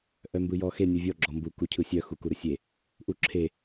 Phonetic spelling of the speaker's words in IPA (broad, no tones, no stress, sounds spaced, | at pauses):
ʔ œ m b ɯ j ɔ x e nʲ u vʲ ɔ ɡ͡ǁ ɔ m b u k u cʰ ɯ sʲ œ x u k u ɾ ɯ sʲ e | ʔ u ǁʰ e